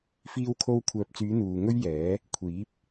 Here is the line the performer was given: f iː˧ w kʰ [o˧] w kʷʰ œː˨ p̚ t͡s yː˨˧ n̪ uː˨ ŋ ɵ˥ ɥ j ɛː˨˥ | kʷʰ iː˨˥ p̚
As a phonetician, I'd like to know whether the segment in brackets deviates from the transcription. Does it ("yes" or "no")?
no